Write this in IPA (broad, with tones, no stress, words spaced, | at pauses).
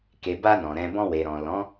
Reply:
ke˨ba˧ nɔ̃˨ɾɛ̃˧ bɔ̃˧we˨ɾɔ̃˨lɔ̃˨˦